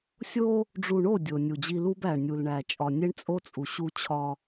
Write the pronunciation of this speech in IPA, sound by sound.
sʲ o˦ | ɖ͡ʐ u˨ ɳ o˦˨ dʲ o˨ nʲ u˨ d͡ʑ i˦ l u˦ b æ˨ ɳ nʲ u˨ l ɳ æ˨ t͡ʃʼ ɒ˨ nʲ e˦ ɳ t͡sʼ o˦ t͡sʼ u˨ ɕ u˦ t͡ɕʰ ɒ˦

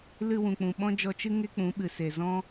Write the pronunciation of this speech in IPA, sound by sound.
l ɨ˧ w ũ˨ k͡p ũ˨ ɓ ɔ̃˦ d͡ʒ ɔ˧ t͡ʃ ɨ˦ ŋ e˦ k͡p ũ˨˦ ɓ ɨ˨ s e˨ z ɔ̃˦

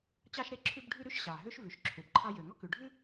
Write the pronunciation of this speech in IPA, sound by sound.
t͡ɕ ɑ˥ ʃ ɾ e˥ ǁʰ ʉ˥ b ɖʱ ʉ˥ ɾ ʉ˥ ʃ ɕ ɑ˩ ɦ ø˥ ʃ v ʉ˩ ʃ ǁʰ ø˩ b ǃʰ ɑ˥ j ø˩ ŋ ɔ˥ k ʉ˩ ɖʱ ʉ˥

